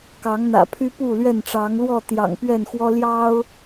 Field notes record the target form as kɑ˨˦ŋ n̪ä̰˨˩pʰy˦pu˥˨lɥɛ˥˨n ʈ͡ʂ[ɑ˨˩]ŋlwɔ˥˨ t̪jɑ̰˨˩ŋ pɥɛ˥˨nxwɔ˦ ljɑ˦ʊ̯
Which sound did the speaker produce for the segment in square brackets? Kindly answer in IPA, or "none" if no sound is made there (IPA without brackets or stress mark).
ɑ˨˦